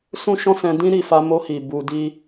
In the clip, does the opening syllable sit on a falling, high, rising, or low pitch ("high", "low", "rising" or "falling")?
high